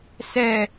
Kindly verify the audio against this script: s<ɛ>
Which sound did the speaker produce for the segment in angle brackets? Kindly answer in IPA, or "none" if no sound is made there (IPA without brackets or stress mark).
ɛ